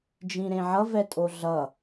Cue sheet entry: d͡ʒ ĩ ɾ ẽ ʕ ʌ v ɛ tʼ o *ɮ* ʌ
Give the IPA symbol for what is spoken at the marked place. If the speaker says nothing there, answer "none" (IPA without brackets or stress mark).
ɮ